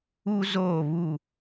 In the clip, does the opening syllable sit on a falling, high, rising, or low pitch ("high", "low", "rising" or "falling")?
high